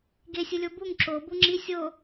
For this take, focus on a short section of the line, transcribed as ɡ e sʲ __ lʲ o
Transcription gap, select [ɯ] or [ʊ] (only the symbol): ɯ